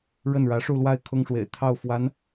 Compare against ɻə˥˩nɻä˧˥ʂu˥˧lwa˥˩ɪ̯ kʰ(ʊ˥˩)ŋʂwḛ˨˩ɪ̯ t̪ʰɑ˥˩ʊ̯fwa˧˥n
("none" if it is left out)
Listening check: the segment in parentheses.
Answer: ʊ˥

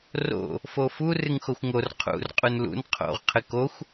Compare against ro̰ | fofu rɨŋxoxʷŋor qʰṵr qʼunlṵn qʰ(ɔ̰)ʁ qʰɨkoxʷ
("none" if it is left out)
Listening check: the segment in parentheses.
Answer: o̰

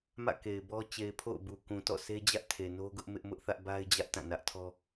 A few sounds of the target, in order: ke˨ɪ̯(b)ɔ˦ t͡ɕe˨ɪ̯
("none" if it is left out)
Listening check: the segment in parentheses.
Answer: b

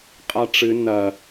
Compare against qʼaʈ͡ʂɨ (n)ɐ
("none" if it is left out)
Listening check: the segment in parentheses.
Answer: n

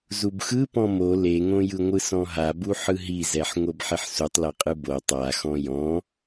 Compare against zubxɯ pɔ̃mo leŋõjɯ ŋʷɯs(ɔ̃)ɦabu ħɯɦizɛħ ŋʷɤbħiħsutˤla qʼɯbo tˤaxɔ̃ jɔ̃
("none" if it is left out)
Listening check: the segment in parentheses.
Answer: ɔ̃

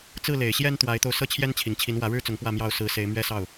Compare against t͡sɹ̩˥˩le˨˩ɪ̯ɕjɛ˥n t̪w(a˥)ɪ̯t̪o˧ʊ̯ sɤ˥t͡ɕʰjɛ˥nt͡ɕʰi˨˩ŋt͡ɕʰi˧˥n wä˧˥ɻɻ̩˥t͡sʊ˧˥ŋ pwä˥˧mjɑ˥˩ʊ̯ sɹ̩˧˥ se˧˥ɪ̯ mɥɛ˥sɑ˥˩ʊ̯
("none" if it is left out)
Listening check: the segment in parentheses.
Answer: a˧˥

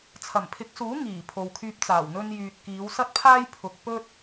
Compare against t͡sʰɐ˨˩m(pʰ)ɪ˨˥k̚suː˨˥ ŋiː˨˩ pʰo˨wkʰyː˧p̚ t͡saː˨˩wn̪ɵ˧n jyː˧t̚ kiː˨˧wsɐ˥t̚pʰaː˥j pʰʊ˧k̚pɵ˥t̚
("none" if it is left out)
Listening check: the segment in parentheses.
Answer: pʰ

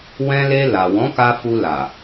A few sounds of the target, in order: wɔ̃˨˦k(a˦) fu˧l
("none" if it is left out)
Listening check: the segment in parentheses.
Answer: a˧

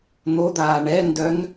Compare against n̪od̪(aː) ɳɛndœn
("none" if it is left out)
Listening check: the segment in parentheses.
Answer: aː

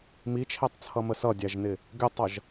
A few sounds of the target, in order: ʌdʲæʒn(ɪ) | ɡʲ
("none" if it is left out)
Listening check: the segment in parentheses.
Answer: ɪ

